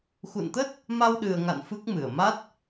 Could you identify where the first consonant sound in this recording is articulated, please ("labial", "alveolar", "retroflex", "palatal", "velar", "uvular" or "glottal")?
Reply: velar